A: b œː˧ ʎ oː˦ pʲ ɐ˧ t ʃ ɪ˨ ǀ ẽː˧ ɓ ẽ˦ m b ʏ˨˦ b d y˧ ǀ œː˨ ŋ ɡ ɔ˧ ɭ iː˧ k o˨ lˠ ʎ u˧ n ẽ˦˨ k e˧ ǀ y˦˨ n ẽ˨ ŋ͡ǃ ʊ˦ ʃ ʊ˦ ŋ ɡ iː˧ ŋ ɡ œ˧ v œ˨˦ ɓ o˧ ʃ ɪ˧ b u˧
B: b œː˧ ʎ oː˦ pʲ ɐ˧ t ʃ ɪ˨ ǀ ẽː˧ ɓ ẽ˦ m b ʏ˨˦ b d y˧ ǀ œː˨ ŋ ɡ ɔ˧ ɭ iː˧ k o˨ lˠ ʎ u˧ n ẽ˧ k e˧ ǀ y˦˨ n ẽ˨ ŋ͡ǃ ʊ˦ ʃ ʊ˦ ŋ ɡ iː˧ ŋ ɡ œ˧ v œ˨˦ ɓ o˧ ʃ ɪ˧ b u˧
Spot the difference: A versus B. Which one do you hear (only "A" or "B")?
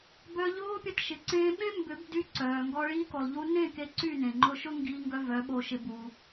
A